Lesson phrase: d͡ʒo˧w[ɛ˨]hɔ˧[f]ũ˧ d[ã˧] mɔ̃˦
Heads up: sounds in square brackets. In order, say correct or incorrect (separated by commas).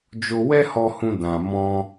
incorrect, incorrect, correct